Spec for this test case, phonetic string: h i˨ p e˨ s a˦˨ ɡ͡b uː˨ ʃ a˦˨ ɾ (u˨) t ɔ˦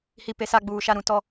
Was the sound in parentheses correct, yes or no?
no